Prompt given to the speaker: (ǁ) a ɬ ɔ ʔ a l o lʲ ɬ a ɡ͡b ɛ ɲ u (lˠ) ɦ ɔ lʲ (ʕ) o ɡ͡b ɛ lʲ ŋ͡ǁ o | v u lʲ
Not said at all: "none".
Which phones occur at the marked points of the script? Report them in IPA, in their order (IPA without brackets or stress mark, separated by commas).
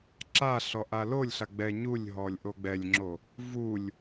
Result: ǁ, lʲ, ʔ